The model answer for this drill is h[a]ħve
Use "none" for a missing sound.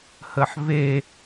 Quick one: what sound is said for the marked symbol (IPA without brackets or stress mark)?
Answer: ə